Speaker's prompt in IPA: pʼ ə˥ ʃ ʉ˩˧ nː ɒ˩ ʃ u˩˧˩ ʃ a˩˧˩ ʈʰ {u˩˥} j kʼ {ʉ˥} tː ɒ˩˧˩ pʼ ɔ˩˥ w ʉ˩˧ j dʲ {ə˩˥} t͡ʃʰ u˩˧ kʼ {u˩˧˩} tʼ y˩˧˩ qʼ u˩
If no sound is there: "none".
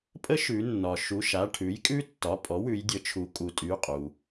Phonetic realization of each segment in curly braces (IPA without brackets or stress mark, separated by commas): ʉ˩˥, ʉ˥, ə˩˥, u˩˧